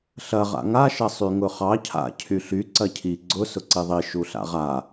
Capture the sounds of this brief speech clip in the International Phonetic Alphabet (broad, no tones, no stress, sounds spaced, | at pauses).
ɬ ɐ ʁ a̰ ŋ a ʃ ɐ sˤ y ŋ ʊ χ ɑ cʰ a̰ cʰ y ɬ y ǀ ɐ cʰ i ɡ͡ǀ ʊ s ʊ ǀ i ðˤ i ʃ u ɬ a̰ ʁ a